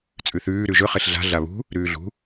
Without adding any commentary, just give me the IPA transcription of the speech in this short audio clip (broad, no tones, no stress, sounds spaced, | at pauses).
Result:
t͡sʼ ʉ θ ʉː ɾ ʉ ʒ ɵ χ e ɬ ɮ a̤ ɮ a β ṳ | ɾ ʉː ɮ ṳ